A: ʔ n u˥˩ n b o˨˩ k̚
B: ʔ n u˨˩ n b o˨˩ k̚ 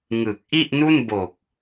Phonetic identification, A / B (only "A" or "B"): A